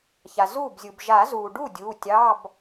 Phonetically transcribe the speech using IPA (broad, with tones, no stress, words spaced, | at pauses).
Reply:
ça˩zuː˥˩bzʲu˩b ʒa˨˩˦zuː˩ɖu˥˩ dʲuː˩˧˩tʲɑ˧˥˧b